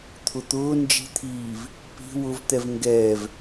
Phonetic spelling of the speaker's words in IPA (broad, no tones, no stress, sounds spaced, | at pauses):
t̪ʰ ʊ t̪ ʊː n d͡ʒ i̤ t̪ʰ iː v | p i̤ w ʊ v t̪ ɛ v ŋ ɡ ɛː v